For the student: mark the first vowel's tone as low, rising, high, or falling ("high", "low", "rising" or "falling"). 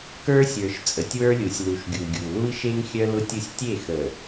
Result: high